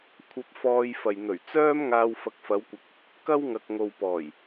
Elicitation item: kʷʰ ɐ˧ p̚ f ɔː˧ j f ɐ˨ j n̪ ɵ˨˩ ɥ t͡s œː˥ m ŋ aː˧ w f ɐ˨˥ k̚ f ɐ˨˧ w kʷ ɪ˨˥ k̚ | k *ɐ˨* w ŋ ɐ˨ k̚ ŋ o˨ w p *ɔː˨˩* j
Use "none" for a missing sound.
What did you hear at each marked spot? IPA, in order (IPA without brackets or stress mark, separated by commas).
ɐ˥, ɔː˨˩